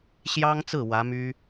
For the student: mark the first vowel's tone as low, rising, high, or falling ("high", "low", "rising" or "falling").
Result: high